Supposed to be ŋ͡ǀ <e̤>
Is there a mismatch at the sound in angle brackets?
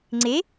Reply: yes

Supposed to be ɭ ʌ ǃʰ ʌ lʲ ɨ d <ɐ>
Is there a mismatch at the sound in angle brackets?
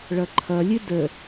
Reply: yes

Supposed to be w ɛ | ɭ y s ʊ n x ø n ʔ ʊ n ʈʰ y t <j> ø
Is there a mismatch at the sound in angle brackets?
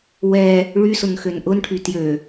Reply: no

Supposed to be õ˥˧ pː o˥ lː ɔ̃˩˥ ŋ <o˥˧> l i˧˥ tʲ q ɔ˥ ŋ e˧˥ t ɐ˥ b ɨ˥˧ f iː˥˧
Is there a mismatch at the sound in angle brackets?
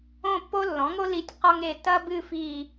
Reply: yes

